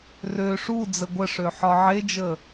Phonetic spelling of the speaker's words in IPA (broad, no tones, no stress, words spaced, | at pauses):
rø ʂu d͡zəɡʷəʂø ħɒʕed͡ʒə